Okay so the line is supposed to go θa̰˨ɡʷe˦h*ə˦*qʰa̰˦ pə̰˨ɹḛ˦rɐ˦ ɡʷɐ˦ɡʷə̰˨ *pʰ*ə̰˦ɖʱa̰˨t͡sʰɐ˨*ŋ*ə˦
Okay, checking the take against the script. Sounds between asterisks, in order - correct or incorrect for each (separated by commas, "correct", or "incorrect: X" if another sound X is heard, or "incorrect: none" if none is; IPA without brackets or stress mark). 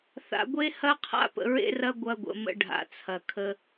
incorrect: ɐ˦, incorrect: m, incorrect: kʰ